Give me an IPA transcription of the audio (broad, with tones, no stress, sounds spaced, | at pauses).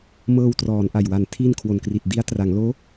m ɤː˧ w t r ɔː˩˦ n ʔ a˨˩ j w a˨˩ n tʰ iː˥˩ n kʰ w o˨˩ n k r i˨˩ t̚ d i˦˥ a̯ t r a˩˦ ŋ l oː˦˥